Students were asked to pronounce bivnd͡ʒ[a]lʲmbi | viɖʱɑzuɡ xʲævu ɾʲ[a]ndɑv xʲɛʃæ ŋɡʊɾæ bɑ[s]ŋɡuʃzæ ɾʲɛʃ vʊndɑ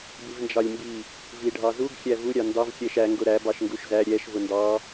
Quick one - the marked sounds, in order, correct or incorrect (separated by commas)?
incorrect, incorrect, incorrect